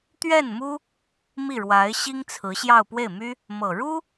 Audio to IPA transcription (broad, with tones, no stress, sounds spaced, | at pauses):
t̪ ɥ ɛ˥˩ n m u˥ | m i˥˩ ɻ w a˧˥ ɪ̯ ɕ i˥ ŋ t͡sʰ ɹ̩˧˥ ɕ j ɑ˥˧ ʊ̯ p w e˥˩ ɪ̯ m y˥ | m ɤ˨˩ ɻ u˥